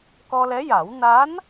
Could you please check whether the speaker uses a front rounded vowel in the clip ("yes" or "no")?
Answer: no